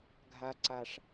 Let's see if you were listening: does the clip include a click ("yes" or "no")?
yes